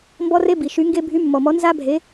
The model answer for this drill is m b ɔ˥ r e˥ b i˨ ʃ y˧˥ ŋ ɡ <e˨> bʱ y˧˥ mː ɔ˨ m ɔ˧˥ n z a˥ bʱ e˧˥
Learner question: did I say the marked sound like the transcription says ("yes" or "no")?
no